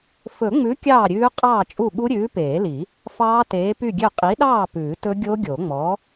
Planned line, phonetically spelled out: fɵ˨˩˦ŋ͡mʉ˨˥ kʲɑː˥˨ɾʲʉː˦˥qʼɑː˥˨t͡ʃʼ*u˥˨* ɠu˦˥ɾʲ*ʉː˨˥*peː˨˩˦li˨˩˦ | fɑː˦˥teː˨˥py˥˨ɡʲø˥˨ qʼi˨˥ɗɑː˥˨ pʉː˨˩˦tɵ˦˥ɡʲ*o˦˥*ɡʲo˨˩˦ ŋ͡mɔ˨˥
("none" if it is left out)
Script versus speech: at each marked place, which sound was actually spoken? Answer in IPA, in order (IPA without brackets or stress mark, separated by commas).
u˥˨, ʉː˨˥, o˦˥